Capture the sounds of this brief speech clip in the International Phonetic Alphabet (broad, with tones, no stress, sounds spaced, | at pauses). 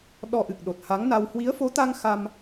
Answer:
ɗ ɔ˧ ʔ ɨ˨˩ k̚ ɗ o˨˩ t̚ h a˨˦ ŋ n a˧ w h w i˨˦ ə̯ f o˨˦ t̪ a˧ ŋ x a˧ m